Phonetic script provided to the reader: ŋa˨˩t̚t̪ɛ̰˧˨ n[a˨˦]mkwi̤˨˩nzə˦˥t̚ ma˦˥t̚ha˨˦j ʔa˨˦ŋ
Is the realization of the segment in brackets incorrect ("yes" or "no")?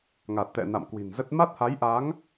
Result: yes